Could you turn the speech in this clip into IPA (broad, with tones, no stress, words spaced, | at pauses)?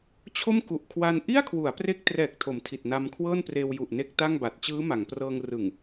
t͡ɕʰo˥˩mku˨˩ʔkʰwa˧n ʔi˥˩a̯kʰwu˩˦a̯ pre˥˩k̚ trɛː˨˩k̚tʰo˩˦m tʰi˨˩t̚na˧mkʰwɤː˥˩npreː˧w ju˨˩ʔ ne˥˩k̚ta˥˩ŋba˨˩t̚ t͡ɕɯː˦˥ma˩˦ŋprɤː˧ŋ rɯ˨˩ŋ